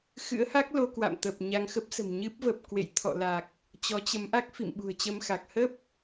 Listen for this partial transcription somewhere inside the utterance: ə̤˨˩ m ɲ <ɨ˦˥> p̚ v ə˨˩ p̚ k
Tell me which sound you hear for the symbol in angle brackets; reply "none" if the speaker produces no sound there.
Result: ɨ˦˥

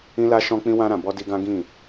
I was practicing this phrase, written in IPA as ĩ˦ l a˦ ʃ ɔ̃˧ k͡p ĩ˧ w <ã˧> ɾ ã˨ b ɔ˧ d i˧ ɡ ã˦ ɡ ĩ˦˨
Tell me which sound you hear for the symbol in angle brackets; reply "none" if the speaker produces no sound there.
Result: ã˧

